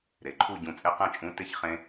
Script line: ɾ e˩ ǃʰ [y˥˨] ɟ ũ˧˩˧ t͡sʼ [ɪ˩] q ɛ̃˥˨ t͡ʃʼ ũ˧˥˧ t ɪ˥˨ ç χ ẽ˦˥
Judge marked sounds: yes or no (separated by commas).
no, no